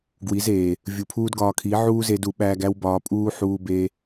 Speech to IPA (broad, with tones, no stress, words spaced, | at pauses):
ɡwi˨˦zeː˨ | vʲu˨ pʰuː˦dɡɒː˧kʰi˨˦ ʕuː˦ze˧du˨ɓæː˧ɡ æ˦wbɒː˧pʼuː˦ ħuː˦ beː˦